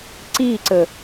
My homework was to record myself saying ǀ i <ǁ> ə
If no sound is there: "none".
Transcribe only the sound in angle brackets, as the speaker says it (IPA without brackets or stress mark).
ǀ